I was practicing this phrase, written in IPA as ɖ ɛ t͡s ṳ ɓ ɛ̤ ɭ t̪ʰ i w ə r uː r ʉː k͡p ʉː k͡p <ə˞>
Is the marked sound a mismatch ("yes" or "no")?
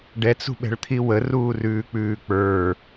no